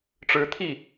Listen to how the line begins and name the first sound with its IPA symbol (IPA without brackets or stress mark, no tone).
ʈ͡ʂ